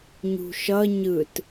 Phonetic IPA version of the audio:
ɲṳʃʌ ɲɯt

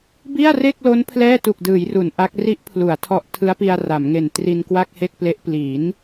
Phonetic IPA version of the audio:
bi˥˩a̯re˥˩k̚lo˦˥n pʰlɛː˥˩tu˨˩k̚dɯː˩˦jru˩˦n ʔa˦˥k̚ ri˦˥ʔpʰlu˩˦a̯ tʰɔ˦˥ʔtʰɯ˦˥a̯pi˧a̯ ra˩˦mŋe˨˩n tri˧nkwa˥˩k̚he˥˩k̚ple˦˥ʔ pli˩˦n

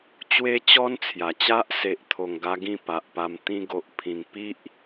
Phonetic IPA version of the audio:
t͡ɕwe˦t͡ɕɔ˦nt͡sʰja˨˩t͡ɕa˦ʔ se˨ʔt̪ʰo˨˩ŋɡa˧ ɡĩ˥˧pa˨ʔpa˧m t̪ĩ˧ɡo˨ʔ pʰĩ˨˩ŋ pi˦ʔ

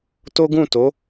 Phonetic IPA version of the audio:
to˦ɡũ˦˨to˨˦

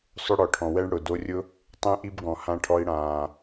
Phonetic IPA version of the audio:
sˤʊ˦ɽɔ˨ʈʰɔ̃˨ wɛ˦ɳɽʊ˨ do˧rʲʊ˦ | tˤẽ˦ʔi˦bɡɔ̃˨ hã˧ʈʰɔ˧i̯ɽãː˨

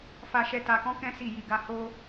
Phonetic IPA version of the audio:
fa˧ʃɛ˧ ta˧kɔ̃˦kɛ̃˦ si˦˨ji˧ɡa˦ ho˦

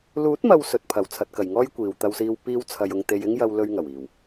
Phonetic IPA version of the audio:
luː˨˥t̚mɐ˨w sɵ˨t̚pʰɐ˨˩w t͡sʰɐ˨t̚kɐ˨˩j ŋɔː˥jkʷiː˨wt̪ɐ˧wsiː˧w piː˥w t͡sʰɐ˧jʊ˧ŋ t̪e˧j ɪ˥ŋjɐ˧w lɵ˧ɥ ŋɐ˨˩wiː˨˩w

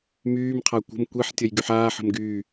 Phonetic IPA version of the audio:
myːmqʰa kʷə̤m kʷeħ tʲəjɡyħaːħə̤m ɡyː

